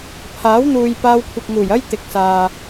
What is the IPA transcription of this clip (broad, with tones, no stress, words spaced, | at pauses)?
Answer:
pʰaː˨˥wn̪uː˨j paː˧wkʷʰɪ˨k̚ŋuː˨˩jɐ˥j t̪ɪ˨k̚saː˨